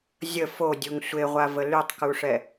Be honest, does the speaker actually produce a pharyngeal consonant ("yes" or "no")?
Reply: no